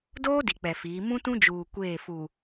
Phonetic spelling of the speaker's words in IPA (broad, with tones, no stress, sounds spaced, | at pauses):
d oː˦ d i˨ k͡p ɛ˨ f iː˨˦ m ũ˦ t ũ˦ d͡ʒ uː˨ kʷ eː˦˨ f u˨